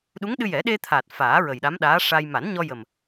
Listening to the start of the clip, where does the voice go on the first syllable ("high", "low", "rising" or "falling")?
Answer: rising